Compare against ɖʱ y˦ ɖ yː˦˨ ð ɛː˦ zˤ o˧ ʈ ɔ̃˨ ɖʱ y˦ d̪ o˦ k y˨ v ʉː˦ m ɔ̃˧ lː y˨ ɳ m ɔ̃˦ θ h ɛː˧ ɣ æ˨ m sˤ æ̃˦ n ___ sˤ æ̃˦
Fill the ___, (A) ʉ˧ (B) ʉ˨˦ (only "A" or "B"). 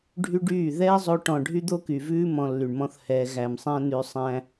A